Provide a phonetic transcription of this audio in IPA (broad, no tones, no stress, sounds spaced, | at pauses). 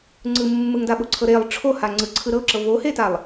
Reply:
ŋ͡ǀ ɯ mː ɯ ŋ d a ɓ o ǀʰ ɤ ɾ e lˠ ʈ͡ʂʰ o h a ŋ͡ǀ ɯ ǀʰ ɯ ɾ ɤ ǁ ɤ v o h e t a lˠ